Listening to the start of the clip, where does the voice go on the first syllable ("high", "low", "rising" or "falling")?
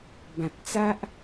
low